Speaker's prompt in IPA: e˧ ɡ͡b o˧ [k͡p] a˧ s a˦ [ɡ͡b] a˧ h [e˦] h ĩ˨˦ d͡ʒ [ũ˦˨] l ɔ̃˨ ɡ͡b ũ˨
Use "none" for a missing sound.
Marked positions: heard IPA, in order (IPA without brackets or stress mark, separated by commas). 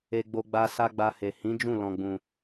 ɡ͡b, ɡ͡b, e˨, ũ˦˨